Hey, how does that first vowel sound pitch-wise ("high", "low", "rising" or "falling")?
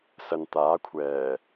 low